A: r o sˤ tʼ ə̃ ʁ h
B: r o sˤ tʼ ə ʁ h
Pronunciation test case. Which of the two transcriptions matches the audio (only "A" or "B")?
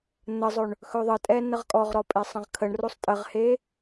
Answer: B